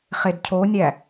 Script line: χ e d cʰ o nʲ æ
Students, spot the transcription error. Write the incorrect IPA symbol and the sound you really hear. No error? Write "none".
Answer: none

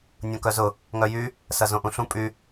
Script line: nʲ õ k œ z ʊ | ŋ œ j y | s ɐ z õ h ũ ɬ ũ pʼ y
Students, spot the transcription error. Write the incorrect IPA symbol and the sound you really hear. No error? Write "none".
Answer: h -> ʔ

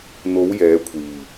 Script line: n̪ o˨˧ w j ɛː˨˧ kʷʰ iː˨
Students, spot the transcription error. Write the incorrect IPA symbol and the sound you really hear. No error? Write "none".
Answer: none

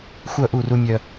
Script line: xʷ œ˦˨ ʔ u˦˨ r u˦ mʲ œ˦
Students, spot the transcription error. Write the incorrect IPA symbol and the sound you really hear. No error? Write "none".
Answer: none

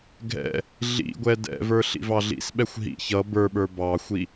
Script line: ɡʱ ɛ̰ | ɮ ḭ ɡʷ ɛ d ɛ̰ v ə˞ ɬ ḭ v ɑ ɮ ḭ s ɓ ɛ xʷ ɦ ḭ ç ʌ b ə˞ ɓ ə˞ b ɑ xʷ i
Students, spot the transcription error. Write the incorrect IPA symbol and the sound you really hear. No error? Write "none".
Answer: none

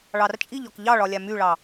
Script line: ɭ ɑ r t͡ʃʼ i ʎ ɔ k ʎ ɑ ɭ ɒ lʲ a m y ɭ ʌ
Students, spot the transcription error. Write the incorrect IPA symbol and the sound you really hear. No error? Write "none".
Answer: ʌ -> ɑ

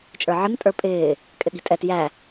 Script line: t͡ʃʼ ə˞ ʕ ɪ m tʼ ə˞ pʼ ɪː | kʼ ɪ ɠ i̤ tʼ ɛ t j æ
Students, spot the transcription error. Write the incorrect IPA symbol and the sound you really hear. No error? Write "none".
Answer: none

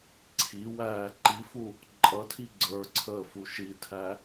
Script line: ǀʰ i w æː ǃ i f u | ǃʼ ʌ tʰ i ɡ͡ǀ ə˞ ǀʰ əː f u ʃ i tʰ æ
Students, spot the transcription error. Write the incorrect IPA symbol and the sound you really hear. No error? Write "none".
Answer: none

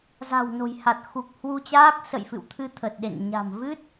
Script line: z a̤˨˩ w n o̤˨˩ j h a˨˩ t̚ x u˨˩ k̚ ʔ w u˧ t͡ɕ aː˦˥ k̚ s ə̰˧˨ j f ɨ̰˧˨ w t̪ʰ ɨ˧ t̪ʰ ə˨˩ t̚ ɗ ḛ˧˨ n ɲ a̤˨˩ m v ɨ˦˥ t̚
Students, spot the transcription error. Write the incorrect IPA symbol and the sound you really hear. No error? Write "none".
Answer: ʔ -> h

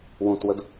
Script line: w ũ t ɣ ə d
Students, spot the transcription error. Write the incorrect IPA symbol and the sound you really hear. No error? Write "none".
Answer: ɣ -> w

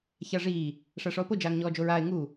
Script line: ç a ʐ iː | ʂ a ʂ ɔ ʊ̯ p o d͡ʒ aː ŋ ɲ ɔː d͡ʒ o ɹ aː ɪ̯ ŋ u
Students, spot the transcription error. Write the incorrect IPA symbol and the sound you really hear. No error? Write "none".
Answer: none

